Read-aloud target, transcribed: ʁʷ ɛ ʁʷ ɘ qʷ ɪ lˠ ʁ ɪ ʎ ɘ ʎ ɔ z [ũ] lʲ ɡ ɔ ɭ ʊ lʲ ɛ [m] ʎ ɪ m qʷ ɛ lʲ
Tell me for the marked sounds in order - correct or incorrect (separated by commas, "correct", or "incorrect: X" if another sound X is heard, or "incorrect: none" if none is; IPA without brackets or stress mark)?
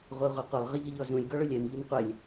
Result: correct, correct